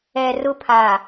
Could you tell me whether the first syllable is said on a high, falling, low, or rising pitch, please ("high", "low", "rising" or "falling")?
low